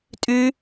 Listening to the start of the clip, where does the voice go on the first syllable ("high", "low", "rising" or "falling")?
high